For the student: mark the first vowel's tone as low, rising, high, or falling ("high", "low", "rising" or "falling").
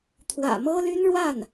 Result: low